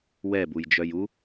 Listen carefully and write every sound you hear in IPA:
w ɛ b u j d͡ʒ œ j u

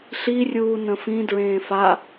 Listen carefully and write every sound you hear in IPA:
ɬ i rʲ uː n ə̃ f ĩ d ɹ ẽː f a

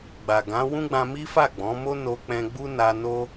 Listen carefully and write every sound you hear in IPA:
ɡ͡b a˨ ɡ ã˨˦ w ũ˦ ɡ͡b ã˧ m i˦ f a˦˨ ɡ͡b ɔ̃˨˦ m o˦ n o˧ k͡p ɛ̃˧ ɡ͡b u˦ n a˧ n o˦

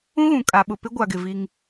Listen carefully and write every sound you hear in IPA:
ũ˦ ɣ ũ˨ kʼ a˨ ɓ ʊ˨ p ɪ˦ ɡʷ a˨ ɡ ɪ˨ v i˦ ŋ

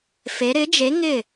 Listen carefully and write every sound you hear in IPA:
f e˩˧ ɾ ɪ˨˥ d͡ʒ e˨˥ ŋ ɪː˥˩

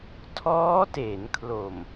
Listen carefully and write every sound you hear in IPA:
tʰ ɔː˦˥ t e˩˦ n kʰ l o˨˩ m

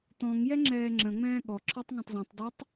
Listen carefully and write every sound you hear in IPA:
t̪ ɔ̃ ŋ j ɛ ŋ͡ǁ ɛː ŋ͡ǁ ə̃ ŋ͡m ɛ̃ː ɠ ɔ ǁʰ ɔ tˤ ŋ ɔ̃ tˤ z ũ tˤ d ɔ tˤ

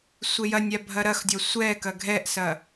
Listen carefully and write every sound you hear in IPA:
sʷ e j ɐ nʲ a bʱ ɐ ɾ ɐ x dʲ ɔ sʷ ɛ k ɐ ɡʱ ɛ ʔ s ɐ

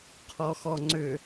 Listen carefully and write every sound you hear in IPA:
qʰ ɔ x ɔ ŋ͡ǀ ʏ

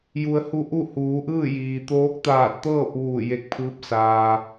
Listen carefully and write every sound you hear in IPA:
j u˩ ə̯ h u˧ ʔ u˥˨ h uː˩˧ ʔ ɯː˥˨ j iː˩ t̪ oː˧˥ k̚ t̪ aː˧˩ t̚ t̪ ɤː˥˨ p̚ ʋ uː˧˩ j e˧ k̚ pʰ ɯː˧˥ p̚ s aː˧

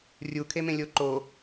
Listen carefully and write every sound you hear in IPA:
rʲ u kʰ e m ẽ lʲ o ǃ o

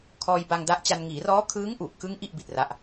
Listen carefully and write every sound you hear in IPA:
kʰ ɔː˧ j b a˧ ŋ d a˦˥ ʔ t͡ɕ a˧ n ŋ iː˩˦ r ɔː˦˥ kʰ ɯː˦˥ ŋ ʔ u˨˩ ʔ k ɯ˦˥ ŋ ʔ i˥˩ ʔ b i˨˩ t̚ r a˦˥ ʔ

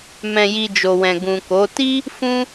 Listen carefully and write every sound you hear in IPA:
m ɛ̃˨ j i˨ d͡ʒ o˨ w ɛ̃˨ ɡ ũ˨ k o˨˦ t i˦ | f ũ˦

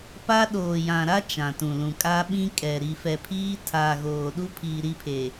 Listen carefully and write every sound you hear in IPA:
p a˦ ɗ oː˨ j ã˨ ɾ a˦ t͡ʃ ã˨ t ũ˨ l ũ˨ kʼ a˦ ɓ ĩ˦ kʼ ɛ˨ ɾ i˨ f ɛ˨ pʰ iː˦ tʰ aː˨ ɣ oː˨ ɗ u˦ pʰ iː˨ ɾ i˦˨ pʰ e˨

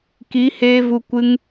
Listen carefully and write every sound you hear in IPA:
k i˨˦ h eː˦ v u˧ kʷ ɨ˦ ŋ

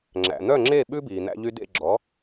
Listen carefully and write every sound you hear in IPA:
ŋ͡ǁ æ̰˩ n̪ œ˥˩ ŋ͡ǁ e˥˩ ɓ ʉ˥ b iː˩ n̪ æ̰˧ ʎ y˧ d ḛ˥˩ ɡ͡ǁ ɔ˩˥

